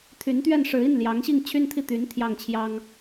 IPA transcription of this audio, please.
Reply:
t̪ʰ y˧˥ n t̪ ɥ ɛ˥˩ n ʂ ɻ̩˧˥ i˥˩ n l j ɑ˧˥ ŋ ɕ i˥˩ ŋ t͡ɕʰ y˥ n t̪ʰ i˥˩ t̪ y˧˥ n t̪ʰ j ɑ˥˩ ŋ t͡ɕʰ j ɑ˥ ŋ

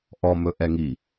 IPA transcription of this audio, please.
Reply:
ʔ ɔ m ɵ ʔ ɛ ŋ i

